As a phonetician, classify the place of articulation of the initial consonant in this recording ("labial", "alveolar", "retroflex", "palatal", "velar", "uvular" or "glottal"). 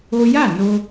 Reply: palatal